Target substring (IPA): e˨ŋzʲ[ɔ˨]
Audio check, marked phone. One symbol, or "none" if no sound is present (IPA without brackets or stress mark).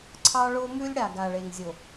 o˨